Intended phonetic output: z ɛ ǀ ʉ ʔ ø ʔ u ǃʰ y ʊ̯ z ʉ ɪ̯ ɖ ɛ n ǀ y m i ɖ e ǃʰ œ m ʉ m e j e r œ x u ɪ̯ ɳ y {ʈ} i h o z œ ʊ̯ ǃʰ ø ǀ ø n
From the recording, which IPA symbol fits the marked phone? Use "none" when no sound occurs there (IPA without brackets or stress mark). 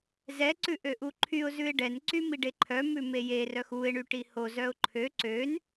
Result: ʈ